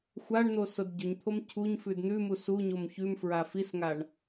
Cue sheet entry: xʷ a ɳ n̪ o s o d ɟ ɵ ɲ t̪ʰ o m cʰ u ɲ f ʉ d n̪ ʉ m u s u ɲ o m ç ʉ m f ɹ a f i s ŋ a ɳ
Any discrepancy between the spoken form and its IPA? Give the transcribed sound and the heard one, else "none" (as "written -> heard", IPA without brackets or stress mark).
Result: none